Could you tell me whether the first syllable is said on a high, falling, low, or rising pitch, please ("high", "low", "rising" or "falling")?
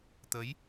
rising